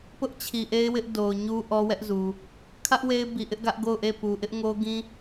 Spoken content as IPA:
p ʊ˦ ʔ t͡ɕʰ i˨ ʔ e˦ ɪ̯ w ɪ˦ ʔ d o˨ ʊ̯ ɲ u˦ ʔ ɔ˦ w ɛ˦ ʔ z u˨ | kʰ ä˦ ʔ w e˦ ɪ̯ b i˨ ʔ ɪ˦ ʔ ɡ ä˦ ʔ ɡ o˦˨ ʊ̯ ʔ e˦˨ p u˨ ʔ ɪ˦ ʔ ŋ o˦ ɡ ĩ˦

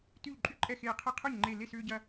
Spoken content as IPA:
t yː˧˩ ʎ ǃʼ y˥˩ ǃʼ ɛ˧˩ x eː˧˩ qʰ ɛ˦ qʰ œ˥˩ ɲ ŋ͡ǃ e˧˩ l e˥˩ s ʏː˦ ɟ ɐ˦

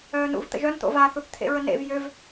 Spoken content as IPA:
œː n ṵ v t̪ ə̰ ʒ œ n t̪ o̰ v a θ u θ t̪ʰ ḛ ɹ ə n ḛ v j ø v

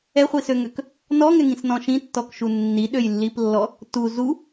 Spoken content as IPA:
ɛ χʷ i s ø ŋ ø k | n ɔ ŋ ɛ ŋ ĩ s n ɔ̃ ʃ ĩ tː ɔ k ʃ u nː i ɗ ø j lː i p lː ɔ | t u z u

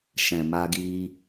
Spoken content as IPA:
ʃ ɛ̃˨ m a˧ ɡ i˧

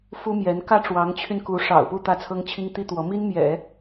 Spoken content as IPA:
f u˥ m j ɛ˧˥ n k ä˥ ʈ͡ʂ w ɑ˧˥ ŋ t͡ɕʰ y˧ n k u˧˥ ʂ ɑ̰˨˩ ʊ̯ p u˥˧ t̪ ä˥˩ t͡sʰ ɤ˥ ŋ t͡ɕʰ i˥ ŋ t̪ i˥ t̪ w ɔ˧˥ m i˥ n m j ɛ̰˨˩˦

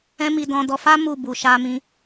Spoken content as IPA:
ɛ̃˦ m i˧ d ɔ̃˧ d ɔ˧ f a˦ m u˦˨ b u˨ ʃ a˧ m ĩ˧

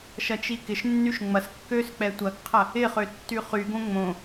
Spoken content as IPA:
ʃ ɐ t͡ʃ i k ɪ ʃ nː y ʃ ŋ͡m ɐ s kː ø s k͡p ɛ tʷ ɐ ɡ qʰ ɐ | ɪ χ ø tː y χ y ɡ õ ŋ͡m õ

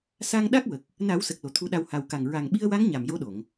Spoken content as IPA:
s a˧ ŋ ɗ a˦˥ k̚ w ə˨˩ k̚ | n a˨˩˦ w s ə˨˩ k̚ l o˨˩ t̪ʰ u˧˥ ɗ a˧ w h a˨˩ w k a˨˩ ŋ ɹ a˨˩ ŋ ɓ i˧ ə̯ w a˧˥ ŋ ɲ a˨˩ m j o˧˥ ɗ o˨˩˨ ŋ

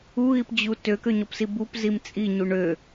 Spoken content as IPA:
u ɣ i p d͡ʑ u t ø k ø ɲ ɔ p s i b u p z i m t͡sʼ i ɲ u ɳ ø

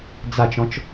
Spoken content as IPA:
d͡z a t͡ʃ ɔ̃ t͡ʃ

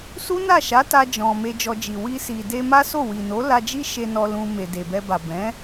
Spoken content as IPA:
s u˦ n a˦˨ ʃ a˨˦ t a˧ d͡ʒ ɔ̃˨ m e˧ d͡ʒ ɔ˧ d͡ʒ i˨ w i˧ s i˨ d e˧ m a˦ s o˦˨ w i˨ n o˨˦ l a˧ d͡ʒ i˦ ʃ e˧ n ɔ˧ l ũ˧ m e˨ d e˨ b ɛ˧ b a˨ b ɛ̃˨˦

